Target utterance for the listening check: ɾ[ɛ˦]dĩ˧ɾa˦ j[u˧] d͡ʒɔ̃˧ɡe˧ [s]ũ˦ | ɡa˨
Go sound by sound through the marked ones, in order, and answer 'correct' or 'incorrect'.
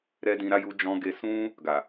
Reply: correct, correct, correct

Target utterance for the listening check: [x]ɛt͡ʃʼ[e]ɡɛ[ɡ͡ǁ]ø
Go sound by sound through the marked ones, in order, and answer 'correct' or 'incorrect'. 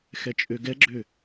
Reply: correct, incorrect: ø, correct

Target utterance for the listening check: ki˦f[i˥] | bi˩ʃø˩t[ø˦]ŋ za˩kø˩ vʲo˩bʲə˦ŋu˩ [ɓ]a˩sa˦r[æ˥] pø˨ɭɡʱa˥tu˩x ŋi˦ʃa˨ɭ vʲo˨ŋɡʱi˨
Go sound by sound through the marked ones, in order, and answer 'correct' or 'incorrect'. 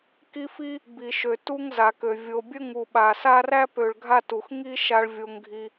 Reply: correct, incorrect: u˦, correct, correct

